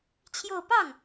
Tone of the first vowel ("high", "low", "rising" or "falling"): falling